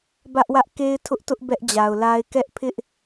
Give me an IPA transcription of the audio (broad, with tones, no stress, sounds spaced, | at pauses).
b ä˦ ʔ w ä˦ ʔ k e˦ ɪ̯ tʰ ʊ˦ ʔ t ʊ˦ ʔ b ɛ˦ ʔ d͡ʑ a˨ ʊ̯ l a˦ ɪ̯ k ɛ˦ ʔ pʰ ɪ˦ ʔ